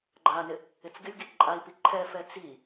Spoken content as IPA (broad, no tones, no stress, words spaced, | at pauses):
ɡ͡ǃanɪ | ɪt͡sɡɪlʲɡi ǃʼai̯pi ǃʰɛfɛ t͡si